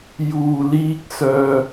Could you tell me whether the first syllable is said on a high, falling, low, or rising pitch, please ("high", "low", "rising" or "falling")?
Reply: low